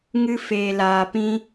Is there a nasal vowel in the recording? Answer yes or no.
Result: yes